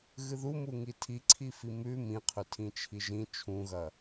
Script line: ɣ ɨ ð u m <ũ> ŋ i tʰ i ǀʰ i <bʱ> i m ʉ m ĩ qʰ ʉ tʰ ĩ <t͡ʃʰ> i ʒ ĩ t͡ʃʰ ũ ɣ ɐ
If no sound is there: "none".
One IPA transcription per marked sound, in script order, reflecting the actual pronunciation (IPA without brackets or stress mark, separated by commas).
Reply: u, f, t͡ʃʰ